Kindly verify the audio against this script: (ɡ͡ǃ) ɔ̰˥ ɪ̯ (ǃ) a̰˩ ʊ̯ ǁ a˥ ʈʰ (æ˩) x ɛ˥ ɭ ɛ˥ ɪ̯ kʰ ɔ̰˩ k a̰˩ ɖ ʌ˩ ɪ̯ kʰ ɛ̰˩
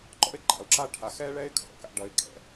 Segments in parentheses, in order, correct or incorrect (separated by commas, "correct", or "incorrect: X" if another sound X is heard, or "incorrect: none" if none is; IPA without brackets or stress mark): incorrect: ǃ, correct, incorrect: a˩